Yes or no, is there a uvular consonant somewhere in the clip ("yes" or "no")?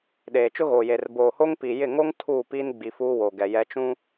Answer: no